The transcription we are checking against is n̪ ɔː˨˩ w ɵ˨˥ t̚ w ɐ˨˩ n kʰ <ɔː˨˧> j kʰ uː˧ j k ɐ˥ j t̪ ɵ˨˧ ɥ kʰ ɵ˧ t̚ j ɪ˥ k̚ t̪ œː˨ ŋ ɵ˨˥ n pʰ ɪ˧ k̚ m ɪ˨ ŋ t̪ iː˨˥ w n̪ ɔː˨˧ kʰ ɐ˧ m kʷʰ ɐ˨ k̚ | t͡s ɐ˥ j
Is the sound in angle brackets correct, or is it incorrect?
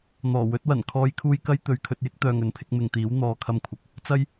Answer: correct